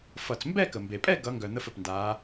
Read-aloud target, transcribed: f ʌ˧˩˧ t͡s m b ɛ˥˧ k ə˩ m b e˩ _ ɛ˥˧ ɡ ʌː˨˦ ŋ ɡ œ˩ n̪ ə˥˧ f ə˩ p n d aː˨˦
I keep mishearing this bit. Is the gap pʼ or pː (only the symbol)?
pʼ